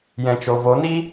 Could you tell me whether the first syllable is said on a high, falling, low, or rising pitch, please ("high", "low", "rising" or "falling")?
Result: low